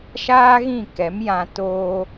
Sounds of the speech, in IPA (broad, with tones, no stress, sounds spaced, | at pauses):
ʃ aː˦ ɣ ĩ˦˨ k ɛ˨˦ m j ã˧ t oː˦